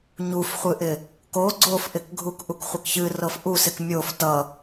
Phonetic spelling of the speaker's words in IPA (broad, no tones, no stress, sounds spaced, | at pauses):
ɲ u f χʷ ɨ ʔ ɪ | k o ɡ͡ǀ o f ʔ ɪ k ɡʱ u k ʔ u k χʷ ʌ k ç ɨ r ɤ f ʔ u s ɪ k mʲ o f t ʌ